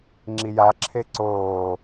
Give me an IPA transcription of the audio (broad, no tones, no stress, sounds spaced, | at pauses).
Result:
ŋ͡ǁ i j a ǁʰ e ǀ oː